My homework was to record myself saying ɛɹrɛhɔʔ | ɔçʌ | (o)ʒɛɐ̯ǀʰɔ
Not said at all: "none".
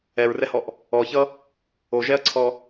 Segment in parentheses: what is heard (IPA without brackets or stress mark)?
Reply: o